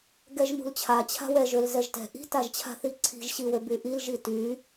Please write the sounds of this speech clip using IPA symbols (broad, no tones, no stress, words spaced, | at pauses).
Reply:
ɡɛʒmṳlt͡ɕʰa t͡ɕʰa̤wɛʒ ølzɛʒtɛ̤ ʔi̤ taʒt͡ɕʰa̤θiǀʰi̤ʒ ɕiwøbyʔil ʒity